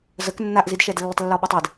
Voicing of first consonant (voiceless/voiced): voiced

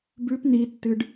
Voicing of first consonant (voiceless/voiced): voiced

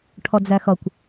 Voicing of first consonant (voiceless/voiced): voiceless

